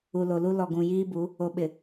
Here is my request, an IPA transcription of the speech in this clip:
u˨ l o˨ l u˦ l ɔ˨ ɡ ũ˨ j iː˦ b u˨˦ | o˨ ɓ ɪ˨

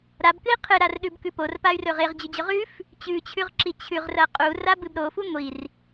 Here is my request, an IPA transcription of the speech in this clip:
ɾ a b k ɨ i̯ qʰ ɨ ɾ a r ɗ ʉ b k ʉ p o r p a y̯ r ɵ ʁ e ʁ d͡ʑ ʉ d͡ʑ ɵ ʁ ʉ f | t͡ɕ ʉ t͡ɕʰ ʉ ʁ ǁ i t͡ɕʰ ʉ ʁ r ɐ qʼ u r a b ɨ b ɾ o f u ŋʷ i r

